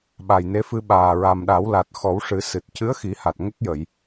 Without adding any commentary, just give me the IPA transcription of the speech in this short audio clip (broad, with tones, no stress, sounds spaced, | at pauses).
ɓ a˨˩ j n e˧˥ f ɨ˧ ɓ aː˨˩ ɹ a˨˩ m ɗ a˨˩˦ w l a˨˩ t̚ x ɔ˨˩˦ w ʂ ɨ˨˩˦ s ɨ˨˩ t̚ c ɨ˧˥ ə̯ x i˨˩˦ h a˨˩ t̚ ŋ ə˦˥ k̚ j ə˨˩˨ j